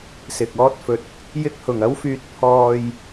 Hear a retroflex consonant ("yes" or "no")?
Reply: no